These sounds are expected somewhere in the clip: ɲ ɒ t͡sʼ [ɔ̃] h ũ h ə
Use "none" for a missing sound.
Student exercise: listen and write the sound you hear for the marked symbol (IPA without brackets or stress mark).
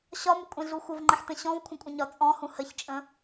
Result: ɔ̃